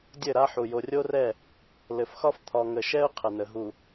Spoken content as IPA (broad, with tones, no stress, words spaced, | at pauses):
dʲɘ˦˨ɾa˦ħu˨ jo˨rʲo˦rɛ˦˨ | lɘ˨fxɒ˦f t̪ʰɒ˨ŋə˨ʃɛ˦ʊ̯ qʰə˨nə˨ɦu˨